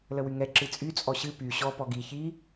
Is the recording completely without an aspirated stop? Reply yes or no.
yes